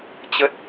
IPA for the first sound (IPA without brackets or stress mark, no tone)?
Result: t͡ɕ